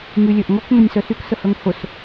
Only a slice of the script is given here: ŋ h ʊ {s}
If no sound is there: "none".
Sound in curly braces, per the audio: s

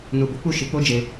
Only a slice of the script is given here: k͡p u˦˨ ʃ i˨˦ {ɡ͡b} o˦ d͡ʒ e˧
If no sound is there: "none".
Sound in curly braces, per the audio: k͡p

